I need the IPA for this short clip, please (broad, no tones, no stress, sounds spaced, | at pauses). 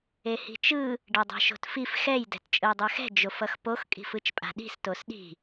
e h i̤ t͡ʃ ɯ | ɖ ɛ dˤ ɛ̤ ʃ o̤ t f i f x ɛ j d ɛ̤ t t͡ʃʼ ɯ j dˤ ɛ x ɛ̤ d͡ʒ o f ʌ x p o x kʼ i̤ f ɯ t͡ʃ pʼ a̤ ɗ i̤ s t o s ɗ i̤